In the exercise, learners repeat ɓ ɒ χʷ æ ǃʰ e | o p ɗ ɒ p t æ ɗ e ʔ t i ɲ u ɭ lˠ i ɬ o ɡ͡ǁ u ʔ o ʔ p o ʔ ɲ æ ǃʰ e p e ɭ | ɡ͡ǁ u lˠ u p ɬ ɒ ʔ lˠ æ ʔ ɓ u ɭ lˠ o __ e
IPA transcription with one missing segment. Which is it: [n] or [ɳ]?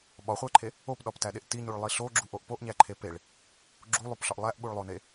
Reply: n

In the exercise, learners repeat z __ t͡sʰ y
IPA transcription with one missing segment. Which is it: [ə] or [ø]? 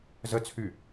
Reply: ə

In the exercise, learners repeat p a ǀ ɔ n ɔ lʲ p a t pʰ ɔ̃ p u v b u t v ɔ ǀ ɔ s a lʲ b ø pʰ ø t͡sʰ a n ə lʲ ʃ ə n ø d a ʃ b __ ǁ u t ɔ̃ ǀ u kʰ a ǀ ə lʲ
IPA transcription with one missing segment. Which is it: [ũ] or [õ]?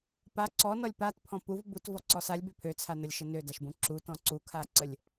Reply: ũ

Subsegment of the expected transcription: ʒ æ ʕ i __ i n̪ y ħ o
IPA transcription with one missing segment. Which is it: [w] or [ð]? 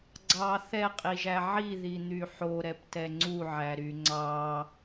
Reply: ð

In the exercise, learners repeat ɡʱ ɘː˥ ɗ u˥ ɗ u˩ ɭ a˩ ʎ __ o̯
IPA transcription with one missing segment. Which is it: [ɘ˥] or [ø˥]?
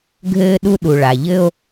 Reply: ɘ˥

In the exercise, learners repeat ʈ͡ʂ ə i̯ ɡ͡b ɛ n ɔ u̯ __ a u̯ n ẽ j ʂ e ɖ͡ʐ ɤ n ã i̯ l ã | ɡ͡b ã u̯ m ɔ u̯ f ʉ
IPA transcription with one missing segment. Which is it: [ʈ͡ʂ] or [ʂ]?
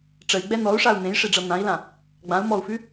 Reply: ʂ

